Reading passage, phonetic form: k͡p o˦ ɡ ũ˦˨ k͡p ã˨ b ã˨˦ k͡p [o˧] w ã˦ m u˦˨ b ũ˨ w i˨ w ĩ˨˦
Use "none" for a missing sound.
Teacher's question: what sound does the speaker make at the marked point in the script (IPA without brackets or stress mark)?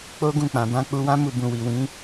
u˧